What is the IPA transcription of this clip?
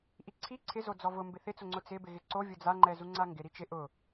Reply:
ʔ i ǀʰ i ǀʰ ɪ z o d͡z ɔ v ʊ m b ɪ θ ɪ t͡s ʊ ŋ͡ǀ ʊ t͡s ɪ b ɪ ɣ ɪ ǀ o vʲ ʊ d͡z a ŋ͡ǃ ɛ z u ŋ͡ǀ a ŋ ɡ ɪ ɾ i t͡ʃ ɪ ʔ ʊ

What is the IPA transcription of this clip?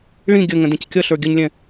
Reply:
ɭ ĩ ɡʲ ə ŋ ə̃ d ĩ c kʲ ʌ ɬ ə˞ ɡʲ ə ɲ lʲ ɛ̃

